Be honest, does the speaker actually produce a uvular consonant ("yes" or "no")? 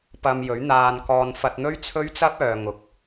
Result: no